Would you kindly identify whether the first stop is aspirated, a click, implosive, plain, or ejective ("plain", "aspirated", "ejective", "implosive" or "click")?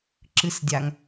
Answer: click